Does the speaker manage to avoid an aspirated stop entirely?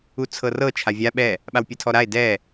no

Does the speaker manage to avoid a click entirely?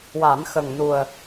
yes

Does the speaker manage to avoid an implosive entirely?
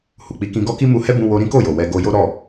yes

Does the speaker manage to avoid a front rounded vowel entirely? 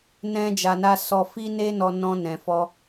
yes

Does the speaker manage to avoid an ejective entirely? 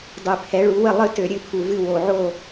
yes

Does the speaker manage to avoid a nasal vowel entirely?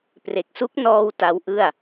yes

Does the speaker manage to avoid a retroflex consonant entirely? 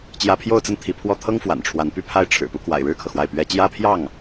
no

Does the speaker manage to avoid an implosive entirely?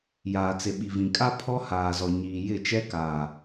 no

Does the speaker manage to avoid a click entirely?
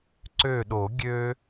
no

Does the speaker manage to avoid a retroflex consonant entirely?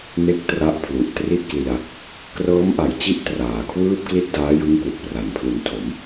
yes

